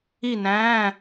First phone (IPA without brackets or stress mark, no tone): i